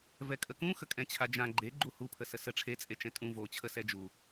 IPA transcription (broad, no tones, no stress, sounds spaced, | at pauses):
v ɛ kʼ ə k ũ x ə kʼ ɛ̃ t͡ɕʰ a d͡ʒ ã ɡ͡ǃ e ɡ͡ǃ u h u pʰ ə s ə s ə ʈ͡ʂʰ e t͡sʼ e t͡ʃ ɛ̃ tʼ ũ v o t͡ɕʰ ə s ɛ d͡ʒ u